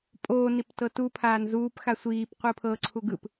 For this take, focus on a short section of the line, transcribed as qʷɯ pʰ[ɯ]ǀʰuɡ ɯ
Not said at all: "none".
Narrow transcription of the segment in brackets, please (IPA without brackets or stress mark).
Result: ɤ